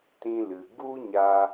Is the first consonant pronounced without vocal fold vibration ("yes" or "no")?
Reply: yes